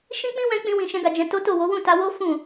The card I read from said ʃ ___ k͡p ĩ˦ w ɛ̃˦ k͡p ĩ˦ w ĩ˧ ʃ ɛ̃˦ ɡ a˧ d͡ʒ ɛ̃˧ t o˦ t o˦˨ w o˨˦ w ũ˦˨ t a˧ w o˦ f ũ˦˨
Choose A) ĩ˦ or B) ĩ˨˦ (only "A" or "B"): A